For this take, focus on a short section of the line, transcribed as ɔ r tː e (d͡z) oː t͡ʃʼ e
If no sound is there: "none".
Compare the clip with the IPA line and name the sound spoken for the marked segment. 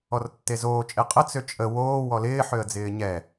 z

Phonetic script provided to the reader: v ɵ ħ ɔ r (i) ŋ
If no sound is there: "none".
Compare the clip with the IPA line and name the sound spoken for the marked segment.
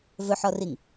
i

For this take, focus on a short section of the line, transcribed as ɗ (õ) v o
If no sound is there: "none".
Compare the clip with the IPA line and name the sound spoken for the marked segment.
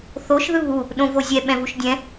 õ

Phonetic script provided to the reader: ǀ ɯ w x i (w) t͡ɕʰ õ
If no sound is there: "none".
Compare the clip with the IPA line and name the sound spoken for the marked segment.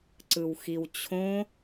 w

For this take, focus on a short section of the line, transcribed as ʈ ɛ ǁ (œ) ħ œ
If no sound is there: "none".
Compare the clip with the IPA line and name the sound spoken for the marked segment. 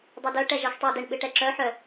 œ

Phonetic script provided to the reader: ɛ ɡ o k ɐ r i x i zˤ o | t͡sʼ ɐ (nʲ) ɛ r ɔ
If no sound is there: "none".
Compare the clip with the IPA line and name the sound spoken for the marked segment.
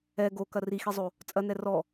n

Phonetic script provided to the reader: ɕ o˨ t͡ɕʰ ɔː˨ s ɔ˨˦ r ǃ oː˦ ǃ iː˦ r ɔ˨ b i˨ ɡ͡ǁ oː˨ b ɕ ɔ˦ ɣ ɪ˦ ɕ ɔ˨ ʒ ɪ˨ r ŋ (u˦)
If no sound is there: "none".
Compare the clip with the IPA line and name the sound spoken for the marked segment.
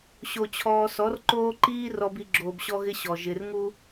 u˦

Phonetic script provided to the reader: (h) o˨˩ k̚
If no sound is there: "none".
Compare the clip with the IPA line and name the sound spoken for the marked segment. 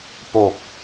p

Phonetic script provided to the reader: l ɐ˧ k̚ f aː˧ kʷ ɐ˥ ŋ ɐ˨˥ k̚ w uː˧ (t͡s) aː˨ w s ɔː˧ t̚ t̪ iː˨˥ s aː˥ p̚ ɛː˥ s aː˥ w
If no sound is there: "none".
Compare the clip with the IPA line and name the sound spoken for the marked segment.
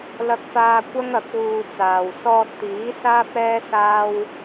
t͡s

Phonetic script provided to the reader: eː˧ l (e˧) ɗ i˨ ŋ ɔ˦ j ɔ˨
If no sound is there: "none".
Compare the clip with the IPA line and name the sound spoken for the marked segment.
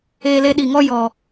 e˧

